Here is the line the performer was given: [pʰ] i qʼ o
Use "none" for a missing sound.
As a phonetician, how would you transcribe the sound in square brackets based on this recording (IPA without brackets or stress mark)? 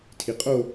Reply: tʰ